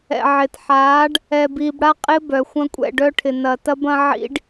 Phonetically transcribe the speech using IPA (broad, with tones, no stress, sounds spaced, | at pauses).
ɛ̰˨ ʕ ɪː˨ t ħ aː˨˦ ɖ | ɛː˨ b iː˨ b ɽ a˦ qʼ ɪː˦ b œ˨ xʷ ɐ̃˦ kʷʼ ɛ̰˦˨ ɖ œ˦ ʈʰ ɪ˨ n ɐ˨ t ɐ˦ b ɐ̃˦ ʕ ḭ˦ ɖ